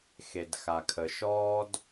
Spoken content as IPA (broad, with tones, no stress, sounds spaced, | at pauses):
x e˩ d x a˩ kʰ ə˩ ʃ ɔː˦ d